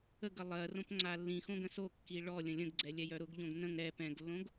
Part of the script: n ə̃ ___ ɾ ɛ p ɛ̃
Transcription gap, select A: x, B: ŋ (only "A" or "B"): B